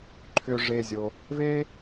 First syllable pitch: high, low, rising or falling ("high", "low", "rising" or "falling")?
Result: low